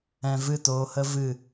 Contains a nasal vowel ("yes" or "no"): yes